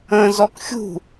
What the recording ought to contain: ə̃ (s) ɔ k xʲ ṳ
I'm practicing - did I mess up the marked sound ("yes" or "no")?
yes